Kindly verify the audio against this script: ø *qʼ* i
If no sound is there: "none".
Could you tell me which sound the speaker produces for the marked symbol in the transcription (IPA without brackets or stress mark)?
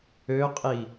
qʼ